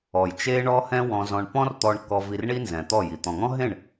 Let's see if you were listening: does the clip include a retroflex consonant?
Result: yes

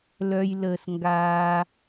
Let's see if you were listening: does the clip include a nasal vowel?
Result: no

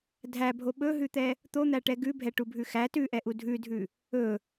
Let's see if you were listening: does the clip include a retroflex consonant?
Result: yes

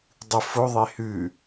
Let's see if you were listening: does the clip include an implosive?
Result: no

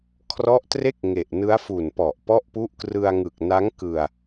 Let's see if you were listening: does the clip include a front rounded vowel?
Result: no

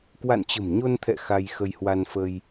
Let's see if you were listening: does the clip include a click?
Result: no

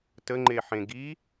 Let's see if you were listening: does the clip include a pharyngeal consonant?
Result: yes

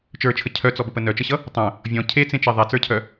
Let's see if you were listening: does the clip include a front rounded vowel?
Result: yes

